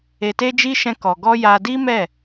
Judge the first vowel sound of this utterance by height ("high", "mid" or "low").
mid